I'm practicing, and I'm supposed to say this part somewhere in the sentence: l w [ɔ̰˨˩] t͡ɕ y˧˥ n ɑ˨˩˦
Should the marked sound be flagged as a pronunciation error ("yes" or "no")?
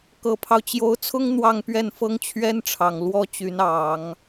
yes